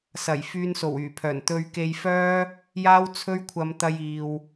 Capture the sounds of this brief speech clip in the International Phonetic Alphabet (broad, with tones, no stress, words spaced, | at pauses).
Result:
sɐ˨˩j fyː˧nso˨˩wyː˨˩pʰœː˨˩n t̪ɵ˧ɥke˧jfœː˥ | jaː˥wt͡sʰɵ˥ɥkʷʰɐ˧m t̪ɐ˥jiː˧w